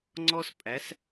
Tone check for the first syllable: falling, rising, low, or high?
high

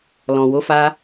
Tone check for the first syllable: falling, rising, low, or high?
low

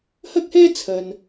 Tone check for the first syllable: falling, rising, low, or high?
high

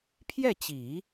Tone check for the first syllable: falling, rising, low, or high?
falling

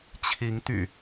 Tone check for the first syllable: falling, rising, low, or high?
rising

